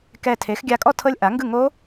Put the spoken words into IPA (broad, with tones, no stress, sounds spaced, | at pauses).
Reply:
k ɛ˧˩ tʰ e˩˥ x ɡʲ a˧ kʼ ɔ˥˨ tʰ ɤ˦˥ lʲ ʔ a˩˥ ŋ ɡ ɯ˥˨ ŋ o˦˥